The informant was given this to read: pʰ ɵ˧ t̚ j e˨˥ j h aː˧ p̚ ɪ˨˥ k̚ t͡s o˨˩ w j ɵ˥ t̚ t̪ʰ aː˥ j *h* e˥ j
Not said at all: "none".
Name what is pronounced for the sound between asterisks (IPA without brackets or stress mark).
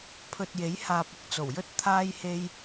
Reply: h